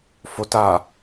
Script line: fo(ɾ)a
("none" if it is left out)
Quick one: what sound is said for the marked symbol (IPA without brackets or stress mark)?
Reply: t